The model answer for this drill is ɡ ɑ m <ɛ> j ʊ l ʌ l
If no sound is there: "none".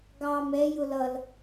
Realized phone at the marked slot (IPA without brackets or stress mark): ɛ